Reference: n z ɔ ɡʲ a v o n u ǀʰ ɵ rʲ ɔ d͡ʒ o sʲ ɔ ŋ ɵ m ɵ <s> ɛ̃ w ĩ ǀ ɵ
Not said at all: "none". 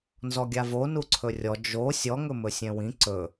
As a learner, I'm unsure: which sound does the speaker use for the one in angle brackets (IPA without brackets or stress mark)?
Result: sʲ